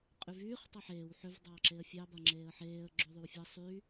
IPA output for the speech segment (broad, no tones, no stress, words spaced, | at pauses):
qʼyvyːχ tˤɑħeːw ħʏv dˤɑːǁeə̯fʲɑ baŋ͡ǁeːə̯ħeːə̯ ɡ͡ǁoðˤywfʲɑ sˤy